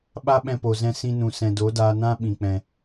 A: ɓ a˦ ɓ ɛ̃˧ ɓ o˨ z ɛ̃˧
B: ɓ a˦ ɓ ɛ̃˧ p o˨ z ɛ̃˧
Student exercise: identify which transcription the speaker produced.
B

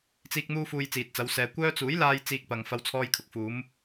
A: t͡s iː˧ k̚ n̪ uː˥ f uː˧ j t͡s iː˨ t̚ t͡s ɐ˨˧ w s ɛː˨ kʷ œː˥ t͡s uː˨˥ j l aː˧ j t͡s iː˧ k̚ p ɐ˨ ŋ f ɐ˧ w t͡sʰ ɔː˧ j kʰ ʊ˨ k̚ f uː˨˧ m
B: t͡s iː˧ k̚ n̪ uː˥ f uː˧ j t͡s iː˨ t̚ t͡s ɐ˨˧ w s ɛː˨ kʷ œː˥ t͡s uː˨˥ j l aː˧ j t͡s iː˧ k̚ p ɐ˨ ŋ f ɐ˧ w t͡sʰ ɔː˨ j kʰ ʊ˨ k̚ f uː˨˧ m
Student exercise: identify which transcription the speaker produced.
A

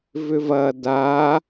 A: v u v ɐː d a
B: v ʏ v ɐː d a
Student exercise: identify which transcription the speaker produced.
B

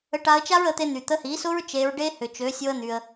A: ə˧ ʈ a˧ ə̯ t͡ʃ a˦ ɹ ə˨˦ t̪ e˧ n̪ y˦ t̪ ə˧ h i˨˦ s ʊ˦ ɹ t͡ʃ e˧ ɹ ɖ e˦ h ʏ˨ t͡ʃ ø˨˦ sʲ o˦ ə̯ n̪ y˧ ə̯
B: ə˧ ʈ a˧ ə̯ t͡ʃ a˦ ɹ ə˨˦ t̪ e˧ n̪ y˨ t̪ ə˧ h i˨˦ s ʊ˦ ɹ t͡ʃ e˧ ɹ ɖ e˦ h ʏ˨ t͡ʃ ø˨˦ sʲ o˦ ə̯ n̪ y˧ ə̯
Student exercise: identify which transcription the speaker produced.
B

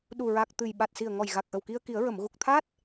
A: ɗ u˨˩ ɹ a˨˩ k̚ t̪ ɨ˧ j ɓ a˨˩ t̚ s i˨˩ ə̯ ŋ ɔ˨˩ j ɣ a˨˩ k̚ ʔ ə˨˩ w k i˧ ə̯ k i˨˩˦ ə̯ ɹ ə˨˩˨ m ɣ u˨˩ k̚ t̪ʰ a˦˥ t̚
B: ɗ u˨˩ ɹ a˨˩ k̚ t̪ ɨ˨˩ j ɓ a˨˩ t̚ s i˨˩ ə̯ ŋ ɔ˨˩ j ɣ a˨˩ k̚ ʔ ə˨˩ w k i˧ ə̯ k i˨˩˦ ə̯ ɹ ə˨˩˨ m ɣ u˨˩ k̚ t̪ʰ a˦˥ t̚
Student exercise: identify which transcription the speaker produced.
B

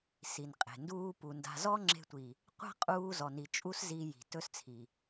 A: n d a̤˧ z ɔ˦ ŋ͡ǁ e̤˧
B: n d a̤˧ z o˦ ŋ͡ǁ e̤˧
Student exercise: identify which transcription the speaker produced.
A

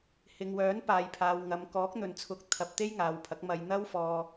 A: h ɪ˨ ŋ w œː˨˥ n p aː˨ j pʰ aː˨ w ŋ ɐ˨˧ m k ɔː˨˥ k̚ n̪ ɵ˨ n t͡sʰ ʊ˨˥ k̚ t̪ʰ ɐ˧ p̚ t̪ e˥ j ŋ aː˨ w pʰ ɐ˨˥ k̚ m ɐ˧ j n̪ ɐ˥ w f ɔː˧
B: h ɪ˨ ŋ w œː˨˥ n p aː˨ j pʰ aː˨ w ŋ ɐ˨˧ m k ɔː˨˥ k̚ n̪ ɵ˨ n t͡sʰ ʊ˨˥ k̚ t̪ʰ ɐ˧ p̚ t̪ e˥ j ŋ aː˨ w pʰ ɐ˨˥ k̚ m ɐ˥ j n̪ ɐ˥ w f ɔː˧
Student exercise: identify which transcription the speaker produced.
A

